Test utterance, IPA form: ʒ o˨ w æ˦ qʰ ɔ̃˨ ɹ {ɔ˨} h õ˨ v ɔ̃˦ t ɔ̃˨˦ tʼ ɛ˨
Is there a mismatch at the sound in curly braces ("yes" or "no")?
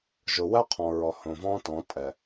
no